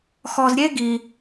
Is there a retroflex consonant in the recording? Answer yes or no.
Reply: no